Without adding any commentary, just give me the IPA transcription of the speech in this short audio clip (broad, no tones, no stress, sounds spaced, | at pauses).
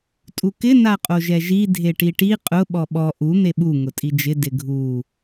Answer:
tʼ u k ɪ n a qʼ o ʒ ɛ ʒ i dʱ e ʈ i ʈ i qʼ ʊ ɓ ɔ ɓ ɔ ʔ u n̪ e ɓ u ŋ ʊ tʼ i d͡ʒ ɪ d ɪ ɡʱ u